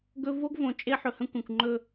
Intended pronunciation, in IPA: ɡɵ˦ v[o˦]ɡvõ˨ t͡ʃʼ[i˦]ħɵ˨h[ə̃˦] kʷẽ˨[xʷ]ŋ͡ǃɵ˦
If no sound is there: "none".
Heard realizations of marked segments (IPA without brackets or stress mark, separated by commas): o˦, e˦, ə̃˦, kʷ